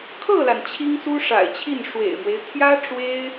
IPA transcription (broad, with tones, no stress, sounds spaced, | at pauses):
kʰ ɤ˥˩ l a˩ n t͡ɕʰ i˥ ŋ s u˥ ʂ a̰˨˩ ɪ̯ t͡ɕʰ i˥˩ n ʂ w ḛ˨˩ ɪ̯ m w e˦ ɪ̯ t̪ʰ j ä˥ ʈ͡ʂ w e˥ ɪ̯